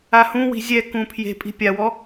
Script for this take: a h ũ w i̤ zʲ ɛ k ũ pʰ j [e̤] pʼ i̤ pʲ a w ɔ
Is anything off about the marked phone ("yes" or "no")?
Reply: no